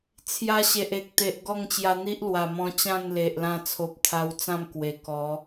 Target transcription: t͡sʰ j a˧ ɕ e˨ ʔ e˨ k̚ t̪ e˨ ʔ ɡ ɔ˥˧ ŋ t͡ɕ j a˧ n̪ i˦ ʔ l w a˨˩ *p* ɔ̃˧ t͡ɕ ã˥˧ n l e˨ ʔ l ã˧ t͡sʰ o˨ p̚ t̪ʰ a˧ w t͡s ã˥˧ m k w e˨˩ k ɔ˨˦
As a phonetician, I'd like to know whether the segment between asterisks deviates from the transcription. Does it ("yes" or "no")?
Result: yes